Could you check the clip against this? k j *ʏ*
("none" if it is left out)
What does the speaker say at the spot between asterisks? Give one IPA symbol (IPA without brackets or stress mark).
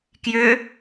ʏ